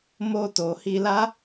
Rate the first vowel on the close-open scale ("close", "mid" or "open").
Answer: mid